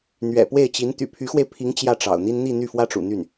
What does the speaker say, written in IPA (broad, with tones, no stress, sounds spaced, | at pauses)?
n̪ ɥ ɛ̰˨˩ p w e˥˩ ɪ̯ t͡ɕ i˧˥ n t̪ y̰˨˩ pʰ y˧˥ x w e˧ ɪ̯ pʰ i˧˥ ŋ t͡ɕ j ä˥˩ ʈ͡ʂ ɑ̰˨˩ ʊ̯ n̪ i˥ n n̪ i˥˧ n̪ y˥˩ f w ä˥ ʈ͡ʂ ṵ˨˩ n̪ y˥˩ n